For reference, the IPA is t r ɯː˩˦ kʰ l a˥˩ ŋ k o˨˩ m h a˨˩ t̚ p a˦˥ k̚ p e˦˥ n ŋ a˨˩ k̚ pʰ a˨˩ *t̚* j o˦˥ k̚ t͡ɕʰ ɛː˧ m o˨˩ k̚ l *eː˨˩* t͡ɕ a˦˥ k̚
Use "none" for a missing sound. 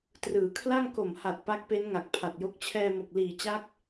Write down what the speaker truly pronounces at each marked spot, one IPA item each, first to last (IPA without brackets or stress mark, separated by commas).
t̚, iː˨˩